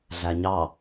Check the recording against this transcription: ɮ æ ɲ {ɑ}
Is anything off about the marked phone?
no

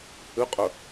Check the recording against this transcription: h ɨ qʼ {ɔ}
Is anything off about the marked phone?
yes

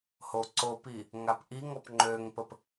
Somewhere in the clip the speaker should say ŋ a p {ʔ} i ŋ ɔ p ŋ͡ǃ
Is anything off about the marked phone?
no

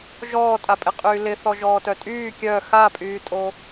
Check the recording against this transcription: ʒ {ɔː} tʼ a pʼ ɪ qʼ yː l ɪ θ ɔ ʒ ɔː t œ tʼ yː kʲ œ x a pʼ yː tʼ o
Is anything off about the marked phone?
no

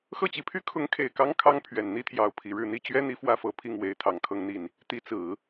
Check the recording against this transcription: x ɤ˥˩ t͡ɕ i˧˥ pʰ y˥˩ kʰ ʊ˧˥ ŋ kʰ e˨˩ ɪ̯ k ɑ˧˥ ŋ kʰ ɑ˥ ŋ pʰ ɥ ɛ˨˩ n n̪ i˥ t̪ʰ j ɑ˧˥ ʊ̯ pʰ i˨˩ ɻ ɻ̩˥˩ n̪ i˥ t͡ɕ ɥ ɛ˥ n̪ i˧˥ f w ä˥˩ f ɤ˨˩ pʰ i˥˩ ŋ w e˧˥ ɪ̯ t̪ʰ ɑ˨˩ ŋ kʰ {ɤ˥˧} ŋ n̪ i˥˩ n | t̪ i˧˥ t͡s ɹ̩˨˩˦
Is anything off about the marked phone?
no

